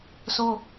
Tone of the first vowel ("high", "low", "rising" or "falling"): high